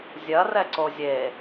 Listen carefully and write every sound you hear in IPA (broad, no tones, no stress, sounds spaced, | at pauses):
zʲ ɐ r ɛ ǀ o zʲ e